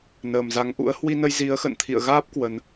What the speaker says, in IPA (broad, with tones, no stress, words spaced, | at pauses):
nəː˨˩mza˨˦ŋʔṵ˧˥ə̯ hwi˧nə˧jzi˨˦ə̯ xə̰˧˨nt̪ʰḭ˧˨ə̯ɣaː˦˥p̚ kwə˧n